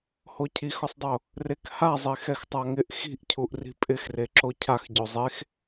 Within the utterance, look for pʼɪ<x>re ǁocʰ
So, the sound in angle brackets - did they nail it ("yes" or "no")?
yes